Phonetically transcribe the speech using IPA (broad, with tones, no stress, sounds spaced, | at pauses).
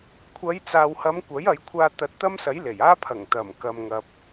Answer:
kʷʰ ɐ˨˧ j t͡s aː˨ w h ɐ˨˧ m kʷ ɐ˨˥ j ɐ˨˧ j kʷʰ aː˧ t̪ ɐ˨˥ t̚ t̪ ɐ˥ m s ɐ˨˥ j l e˨˩ j aː˥ pʰ ɐ˨˩ ŋ t̪ ɐ˨˩ m k ɐ˨ m ŋ ɐ˨ p̚